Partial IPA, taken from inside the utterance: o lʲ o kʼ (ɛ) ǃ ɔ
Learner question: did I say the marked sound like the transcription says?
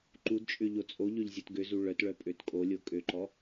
no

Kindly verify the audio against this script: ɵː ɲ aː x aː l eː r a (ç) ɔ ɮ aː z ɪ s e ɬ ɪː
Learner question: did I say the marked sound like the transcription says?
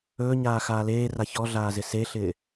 yes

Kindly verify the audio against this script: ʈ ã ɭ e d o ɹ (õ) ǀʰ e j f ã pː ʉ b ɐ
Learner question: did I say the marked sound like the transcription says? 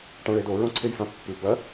yes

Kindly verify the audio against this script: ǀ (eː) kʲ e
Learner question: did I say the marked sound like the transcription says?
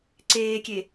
yes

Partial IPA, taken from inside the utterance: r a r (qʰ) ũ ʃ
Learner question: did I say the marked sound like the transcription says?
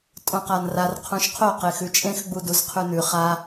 yes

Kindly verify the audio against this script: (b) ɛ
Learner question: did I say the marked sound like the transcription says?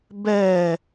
yes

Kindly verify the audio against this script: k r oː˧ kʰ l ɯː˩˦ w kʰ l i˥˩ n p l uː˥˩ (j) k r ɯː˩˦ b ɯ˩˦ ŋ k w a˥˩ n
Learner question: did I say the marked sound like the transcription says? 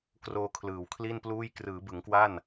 yes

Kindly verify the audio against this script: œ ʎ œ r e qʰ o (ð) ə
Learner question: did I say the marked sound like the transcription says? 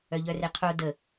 no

